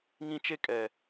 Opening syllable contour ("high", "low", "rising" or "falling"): high